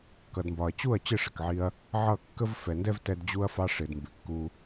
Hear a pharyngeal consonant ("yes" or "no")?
yes